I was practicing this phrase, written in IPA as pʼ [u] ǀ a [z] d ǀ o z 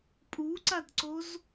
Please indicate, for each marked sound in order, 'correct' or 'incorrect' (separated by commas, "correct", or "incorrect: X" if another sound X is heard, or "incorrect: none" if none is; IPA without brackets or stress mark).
correct, incorrect: none